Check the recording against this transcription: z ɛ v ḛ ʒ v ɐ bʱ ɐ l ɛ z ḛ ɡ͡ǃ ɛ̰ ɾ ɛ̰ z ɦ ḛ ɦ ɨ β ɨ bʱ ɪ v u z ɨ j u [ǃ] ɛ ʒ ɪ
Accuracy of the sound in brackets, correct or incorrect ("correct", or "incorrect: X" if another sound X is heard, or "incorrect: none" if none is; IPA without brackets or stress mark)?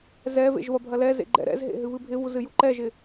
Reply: correct